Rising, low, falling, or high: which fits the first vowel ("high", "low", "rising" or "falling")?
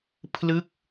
falling